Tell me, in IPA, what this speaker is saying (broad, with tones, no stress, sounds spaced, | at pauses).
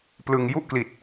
p l ɯ˧ ŋ j u˥˩ ʔ k l i˨˩ t̚